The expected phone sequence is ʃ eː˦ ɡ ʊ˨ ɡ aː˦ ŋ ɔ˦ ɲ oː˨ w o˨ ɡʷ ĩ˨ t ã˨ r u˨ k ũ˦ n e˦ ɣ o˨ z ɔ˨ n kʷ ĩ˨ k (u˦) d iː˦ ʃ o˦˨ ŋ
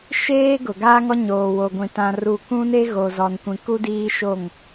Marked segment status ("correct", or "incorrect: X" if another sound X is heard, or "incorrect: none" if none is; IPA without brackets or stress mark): correct